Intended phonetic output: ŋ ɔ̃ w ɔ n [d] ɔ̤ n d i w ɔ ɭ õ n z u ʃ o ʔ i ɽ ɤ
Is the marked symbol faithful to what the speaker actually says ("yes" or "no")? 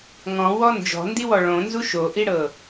no